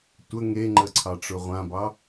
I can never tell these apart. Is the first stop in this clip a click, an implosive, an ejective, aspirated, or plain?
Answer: plain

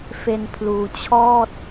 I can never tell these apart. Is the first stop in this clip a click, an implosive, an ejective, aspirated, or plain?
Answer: aspirated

